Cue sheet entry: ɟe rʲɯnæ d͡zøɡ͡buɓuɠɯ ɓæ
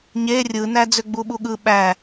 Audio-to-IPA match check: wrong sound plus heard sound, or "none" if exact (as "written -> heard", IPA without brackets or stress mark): ɟ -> ɲ